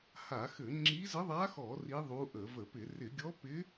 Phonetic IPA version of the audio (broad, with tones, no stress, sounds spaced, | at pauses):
h a˧˩˧ x ɘ˧˩˧ ŋ͡ǁ i˧˥ z ɘ˧˥ ðˤ a˧˥ x ɔ˧˩˧ r i˧˥ ðˤ u˧˥ ʔ ə˧˩˧ v ə˧˩˧ p ɪ˧˩˧ r ɪ˧˩˧ ɡʲ ɔ˧˥ p ɪ˧˥